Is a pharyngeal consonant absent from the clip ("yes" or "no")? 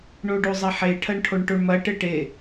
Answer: no